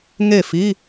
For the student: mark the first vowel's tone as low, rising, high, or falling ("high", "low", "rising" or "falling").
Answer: falling